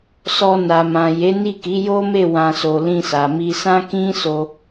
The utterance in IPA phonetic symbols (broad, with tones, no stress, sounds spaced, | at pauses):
s ɔ˧ n a˨ m ã˨ j e˨˦ n i˦˨ k i˨˦ j o˦ m e˦˨ w ã˧ s o˧ l ĩ˧ s a˨ m i˧ s ã˦ k ĩ˦ s o˧